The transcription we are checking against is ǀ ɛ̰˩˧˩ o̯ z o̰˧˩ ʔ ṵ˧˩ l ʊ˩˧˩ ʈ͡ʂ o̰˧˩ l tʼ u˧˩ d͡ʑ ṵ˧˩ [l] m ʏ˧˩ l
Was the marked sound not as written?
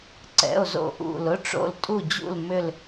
no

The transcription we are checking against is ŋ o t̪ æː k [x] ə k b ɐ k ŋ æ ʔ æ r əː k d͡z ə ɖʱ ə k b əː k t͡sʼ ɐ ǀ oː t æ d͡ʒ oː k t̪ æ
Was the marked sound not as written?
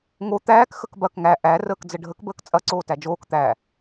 no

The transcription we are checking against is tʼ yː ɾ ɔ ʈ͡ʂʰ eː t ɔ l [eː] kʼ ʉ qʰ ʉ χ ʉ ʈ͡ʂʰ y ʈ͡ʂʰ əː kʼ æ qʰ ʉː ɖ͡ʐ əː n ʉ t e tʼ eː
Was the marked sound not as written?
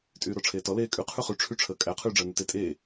no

